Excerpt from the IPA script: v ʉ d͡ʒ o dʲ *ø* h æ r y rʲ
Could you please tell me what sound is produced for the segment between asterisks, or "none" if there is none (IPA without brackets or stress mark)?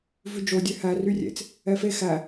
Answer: ø